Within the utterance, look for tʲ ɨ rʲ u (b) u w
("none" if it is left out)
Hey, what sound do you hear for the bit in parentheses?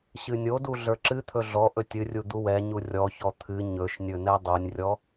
d̪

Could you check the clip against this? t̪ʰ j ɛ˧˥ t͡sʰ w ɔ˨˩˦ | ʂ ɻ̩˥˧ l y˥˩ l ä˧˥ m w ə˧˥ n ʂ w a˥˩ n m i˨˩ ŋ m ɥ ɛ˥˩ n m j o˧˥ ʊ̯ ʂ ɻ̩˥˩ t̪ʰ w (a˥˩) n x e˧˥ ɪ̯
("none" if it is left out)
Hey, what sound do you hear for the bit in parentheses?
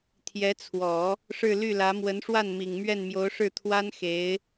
a˥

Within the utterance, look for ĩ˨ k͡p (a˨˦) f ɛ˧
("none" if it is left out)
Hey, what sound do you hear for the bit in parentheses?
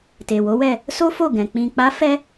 a˨˦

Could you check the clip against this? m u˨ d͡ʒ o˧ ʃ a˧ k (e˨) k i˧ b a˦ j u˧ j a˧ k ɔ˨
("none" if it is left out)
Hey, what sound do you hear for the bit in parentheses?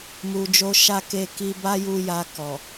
e˧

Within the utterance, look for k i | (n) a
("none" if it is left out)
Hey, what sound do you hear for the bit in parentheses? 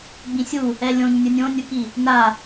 n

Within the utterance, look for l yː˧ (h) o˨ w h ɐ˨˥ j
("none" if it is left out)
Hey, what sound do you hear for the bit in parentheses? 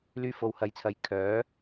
f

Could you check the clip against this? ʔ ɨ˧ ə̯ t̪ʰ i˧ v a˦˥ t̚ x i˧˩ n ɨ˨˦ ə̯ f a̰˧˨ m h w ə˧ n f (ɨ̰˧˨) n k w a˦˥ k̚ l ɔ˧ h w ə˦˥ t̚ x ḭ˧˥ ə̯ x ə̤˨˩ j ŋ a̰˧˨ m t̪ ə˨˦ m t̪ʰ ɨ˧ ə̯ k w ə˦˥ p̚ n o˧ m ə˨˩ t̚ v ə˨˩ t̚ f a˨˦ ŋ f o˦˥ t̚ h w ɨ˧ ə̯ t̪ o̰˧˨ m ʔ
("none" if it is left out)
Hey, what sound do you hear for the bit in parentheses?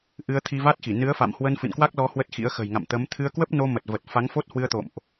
ɨ̰˧˨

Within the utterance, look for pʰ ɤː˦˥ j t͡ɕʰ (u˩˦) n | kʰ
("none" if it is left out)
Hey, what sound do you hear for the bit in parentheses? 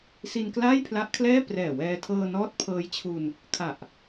u˧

